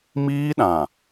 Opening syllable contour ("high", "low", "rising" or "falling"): high